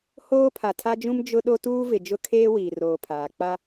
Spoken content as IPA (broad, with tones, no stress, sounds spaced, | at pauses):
h oː˦ pʰ a˨ tʰ a˦ d͡ʒ ũ˦ m d͡ʒ ʊ˦ ɗ o˦ t uː˦ v ɪ˨ d͡ʒ ʊ˦ kʰ eː˦ w iː˨ r oː˨ pʰ aː˨ k͡p a˦